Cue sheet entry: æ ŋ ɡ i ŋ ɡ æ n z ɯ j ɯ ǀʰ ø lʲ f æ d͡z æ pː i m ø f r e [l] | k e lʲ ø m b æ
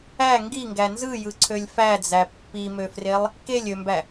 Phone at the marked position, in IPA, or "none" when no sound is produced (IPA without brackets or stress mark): lˠ